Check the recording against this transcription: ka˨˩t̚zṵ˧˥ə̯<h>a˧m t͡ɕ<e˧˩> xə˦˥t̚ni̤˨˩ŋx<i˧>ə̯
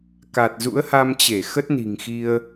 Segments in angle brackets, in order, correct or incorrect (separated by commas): correct, correct, correct